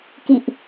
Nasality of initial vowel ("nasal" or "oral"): oral